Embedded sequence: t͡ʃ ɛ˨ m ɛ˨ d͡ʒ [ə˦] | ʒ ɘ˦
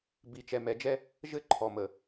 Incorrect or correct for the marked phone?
incorrect: ɛ˦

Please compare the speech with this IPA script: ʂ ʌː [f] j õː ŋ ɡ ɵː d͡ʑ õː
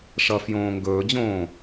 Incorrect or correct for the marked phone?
correct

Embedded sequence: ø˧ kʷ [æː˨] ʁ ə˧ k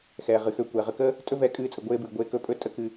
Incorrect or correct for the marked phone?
incorrect: ɛː˨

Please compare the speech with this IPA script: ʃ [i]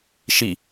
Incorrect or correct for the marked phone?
correct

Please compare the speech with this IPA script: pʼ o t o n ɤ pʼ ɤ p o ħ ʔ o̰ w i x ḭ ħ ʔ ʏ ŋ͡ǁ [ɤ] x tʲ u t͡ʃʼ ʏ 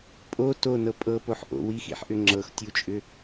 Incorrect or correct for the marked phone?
correct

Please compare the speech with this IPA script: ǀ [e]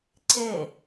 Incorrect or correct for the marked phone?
correct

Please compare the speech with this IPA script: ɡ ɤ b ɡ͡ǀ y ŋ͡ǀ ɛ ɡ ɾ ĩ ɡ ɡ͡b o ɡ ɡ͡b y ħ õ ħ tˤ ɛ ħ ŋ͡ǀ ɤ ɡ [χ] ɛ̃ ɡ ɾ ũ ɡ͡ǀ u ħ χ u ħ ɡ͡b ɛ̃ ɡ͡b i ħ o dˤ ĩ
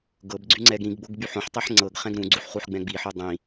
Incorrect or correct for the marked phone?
correct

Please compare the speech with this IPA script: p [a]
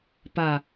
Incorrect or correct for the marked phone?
correct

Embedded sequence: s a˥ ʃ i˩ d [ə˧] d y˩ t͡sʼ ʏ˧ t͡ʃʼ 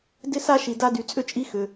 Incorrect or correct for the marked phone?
incorrect: a˧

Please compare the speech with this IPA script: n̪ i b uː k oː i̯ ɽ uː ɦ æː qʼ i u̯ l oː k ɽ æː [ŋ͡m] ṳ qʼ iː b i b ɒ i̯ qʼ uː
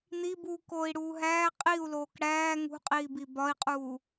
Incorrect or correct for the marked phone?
incorrect: ŋ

